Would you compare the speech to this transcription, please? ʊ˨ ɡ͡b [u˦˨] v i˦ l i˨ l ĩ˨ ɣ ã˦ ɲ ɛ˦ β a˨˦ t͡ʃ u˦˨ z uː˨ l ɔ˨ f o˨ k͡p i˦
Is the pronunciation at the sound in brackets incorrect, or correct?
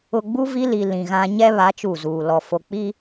incorrect